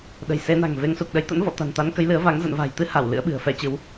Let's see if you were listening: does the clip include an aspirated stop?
no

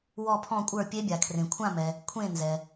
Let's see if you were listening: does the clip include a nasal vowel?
yes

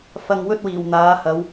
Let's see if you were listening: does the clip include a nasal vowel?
no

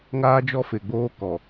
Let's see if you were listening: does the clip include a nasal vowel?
no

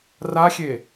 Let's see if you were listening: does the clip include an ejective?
no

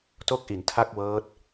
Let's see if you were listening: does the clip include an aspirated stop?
yes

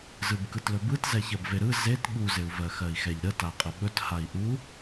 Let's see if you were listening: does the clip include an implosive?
yes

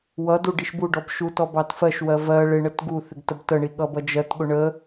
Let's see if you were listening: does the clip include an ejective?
no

